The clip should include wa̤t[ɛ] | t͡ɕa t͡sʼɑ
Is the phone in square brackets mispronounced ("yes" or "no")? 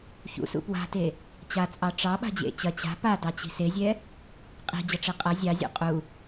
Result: yes